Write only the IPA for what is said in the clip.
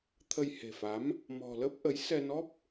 t̪ʰ ə˧ j h e̤˨˩ f a˨˦ m | m ɔ̤˨˩ l ə˦˥ p̚ ʔ ə˨˦ j s ɛ˧ n ɔ˦˥ p̚

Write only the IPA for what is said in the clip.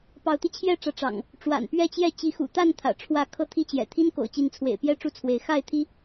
p ɑ˨˦ ʊ̯ t̪ i˧ t͡ɕʰ j ɛ˥˨ ʈ͡ʂ ä˨˦ ʈ͡ʂ ɑ̰˨˩ ŋ | ʈ͡ʂ w a̰˨˩ n p ɥ ɛ˥˨ t͡ɕ j ɛ˥˨ t͡ɕ i˨˦ x ṵ˨˩ t̪ a˥˨ n t̪ʰ ä̰˨˩ ʈ͡ʂʰ w ä˥˨ kʰ ɤ˥˨ t̪ʰ i˥˨ t͡ɕ j ɛ̰˨˩ t̪ʰ i˦ n k o̰˨˩ ʊ̯ t͡ɕ i˨˦ n t͡sʰ w ḛ˨˩ ɪ̯ p j ɛ˦ ʈ͡ʂ u˦ t͡sʰ w e˨˦ ɪ̯ x a˥˨ ɪ̯ t̪ʰ i˦

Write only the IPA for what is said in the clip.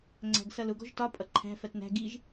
ŋ͡ǀ æ̤ ɡ s ʌ l ʊ ɡ ɔ̤ ʒ t ɒ pʼ ʌ ǃʰ æ̤ f ɜ t n æ̤ ɡ i ʒ

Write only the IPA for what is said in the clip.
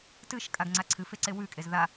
t ɨ ʃ kʼ a ɡ ŋ͡ǀ a ǀʰ ɨ f e ǀ e w ʉ kʼ e z ð a

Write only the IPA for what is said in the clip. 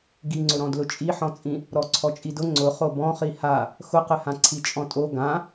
ɡ i ŋ͡ǀ ʊ ɾ ɔ̃ d l ʊ t͡ʃʼ i ħ ɔ̃ t͡sʼ ĩ | ɾ ɔ ǀʰ ɔ t͡ʃʼ i d ʊ ŋ͡ǀ ʊ χ o b ɔ̃ χ i h a | x ʊ q ɪ h ã ǀʰ i t͡ʃʼ ɔ̃ tʼ o ɡ ã

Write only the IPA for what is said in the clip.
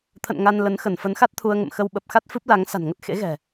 t̪ʰ ə̰˧˨ n ŋ a˧ n l ə˨˦ n x ə˧˩ n f ə˨˦ n x a˦˥ t̚ t̪ʰ u˧ ə̯ ŋ ə̰˧˨ m x ə˧ w ɓ ə˨˩ p̚ x a˦˥ t̚ f ɨ˦˥ p̚ l a˨˦ ŋ s a̤˨˩ n ŋ ə˦˥ t̚ x ḛ˧˥ ɣ ɛ̤˨˩

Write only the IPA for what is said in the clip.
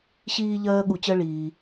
ɕ iː˧ ʎ ɜː˧ ɠ u˧ t͡ɕ ɜ˥ ɭ iː˩

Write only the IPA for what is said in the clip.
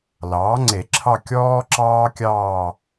l ɑː˩˥ ŋ͡ǀ e˨˩˦ ǁʰ ɑ˥˧ kʲ ɔː˥ ǁ ɑː˥ kʲ ɑː˥˧

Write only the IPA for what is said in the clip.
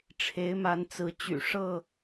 ʈ͡ʂʰ e˨˦ ɪ̯ m a˨˦ n t͡s ɹ̩˨˦ t͡ɕ y̰˨˩ ʂ ɤ˥˨

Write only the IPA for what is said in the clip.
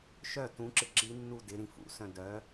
ʃ œ t ũ ǁ ɪ ǁ i nː u d ɪ ɾ ĩ f ṵ s œ̃ d œ

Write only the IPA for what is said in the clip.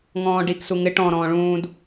ŋ ɔ̃ː ɖ i k s u ŋ ɪ ʈ ɔ̃ ɾ ɔ̃ː ɭ ũː d

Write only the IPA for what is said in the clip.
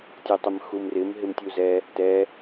tʲ o tˤ ɪ m x u m r ɪ m ɦ ɪ m tʲ u z ɛ | t ɛ

